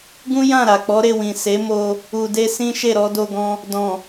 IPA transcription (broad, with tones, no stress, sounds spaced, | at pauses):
ɡ ũ˦ j ã˦˨ ɾ a˨ k͡p ɔ˨˦ ɾ e˦˨ w ĩ˨ s e˨˦ m o˧ | u˨ d e˧ s ĩ˦ ʃ e˦˨ ɾ ɔ˧ d o˧ ɡ ɔ̃˧ | d ɔ̃˨